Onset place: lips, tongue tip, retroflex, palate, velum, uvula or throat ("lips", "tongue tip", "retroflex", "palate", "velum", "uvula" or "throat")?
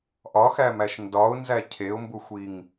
throat